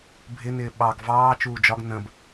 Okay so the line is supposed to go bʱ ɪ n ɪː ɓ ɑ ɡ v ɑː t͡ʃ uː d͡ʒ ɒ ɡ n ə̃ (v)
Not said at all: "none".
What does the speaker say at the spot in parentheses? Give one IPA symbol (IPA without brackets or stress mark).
b